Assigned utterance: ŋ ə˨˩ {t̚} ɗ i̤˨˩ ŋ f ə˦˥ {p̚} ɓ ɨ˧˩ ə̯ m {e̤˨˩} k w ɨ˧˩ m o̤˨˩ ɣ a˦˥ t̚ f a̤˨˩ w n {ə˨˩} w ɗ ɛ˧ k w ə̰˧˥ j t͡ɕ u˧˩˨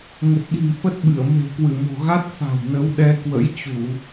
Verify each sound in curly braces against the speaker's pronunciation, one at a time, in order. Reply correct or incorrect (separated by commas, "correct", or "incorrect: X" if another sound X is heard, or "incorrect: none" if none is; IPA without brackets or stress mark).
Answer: correct, incorrect: t̚, correct, incorrect: ə˨˦